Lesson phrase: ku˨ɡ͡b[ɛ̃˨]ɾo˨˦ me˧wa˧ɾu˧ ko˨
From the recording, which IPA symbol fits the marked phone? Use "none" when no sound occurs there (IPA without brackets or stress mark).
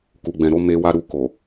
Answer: ɛ̃˨